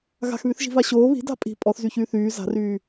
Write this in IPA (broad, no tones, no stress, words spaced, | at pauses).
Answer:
ɣa̤xβyθʒi̤va ɕoː βi̤da̤ pʼi̤ pʼɔθzyçyː θyː za̤ryː